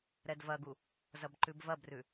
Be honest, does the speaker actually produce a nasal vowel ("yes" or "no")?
no